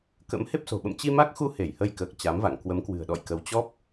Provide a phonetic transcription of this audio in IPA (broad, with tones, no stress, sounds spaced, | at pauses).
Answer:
k ə̰˧˥ m h e˦˥ p̚ s o̤˨˩ ɓ ə̰˧˨ m t͡ɕ i˧ m a˦˥ k̚ x u˧ h e˧˩ j h ə˧ j k əː˨˩ k̚ t͡ɕ a˨˦ m v a̰˧˨ ŋ k w ə˨˦ m k w ɨ̤˨˩ ə̯ ɗ ɔ̰˧˨ j k ə˨˦ w t͡ɕ ɔ˦˥ p̚